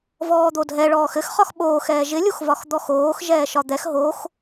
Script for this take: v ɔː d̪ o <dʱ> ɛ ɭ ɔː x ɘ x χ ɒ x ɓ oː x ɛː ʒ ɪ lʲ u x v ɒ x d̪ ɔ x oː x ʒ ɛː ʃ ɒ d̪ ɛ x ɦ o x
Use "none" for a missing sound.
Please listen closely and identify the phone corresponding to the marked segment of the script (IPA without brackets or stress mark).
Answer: dʱ